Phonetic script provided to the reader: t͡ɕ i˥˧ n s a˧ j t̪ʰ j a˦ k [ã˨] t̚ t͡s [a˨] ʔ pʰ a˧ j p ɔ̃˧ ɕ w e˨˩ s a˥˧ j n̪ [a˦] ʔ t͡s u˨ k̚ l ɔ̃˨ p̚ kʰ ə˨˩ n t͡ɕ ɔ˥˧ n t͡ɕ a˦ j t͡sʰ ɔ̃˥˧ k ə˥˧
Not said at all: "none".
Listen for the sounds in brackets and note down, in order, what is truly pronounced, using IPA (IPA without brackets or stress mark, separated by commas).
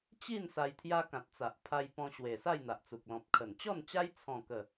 ã˨, a˨, a˨